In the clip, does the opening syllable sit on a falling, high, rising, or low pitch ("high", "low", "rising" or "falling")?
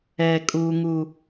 high